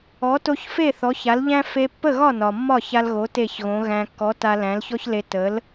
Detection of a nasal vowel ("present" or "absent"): present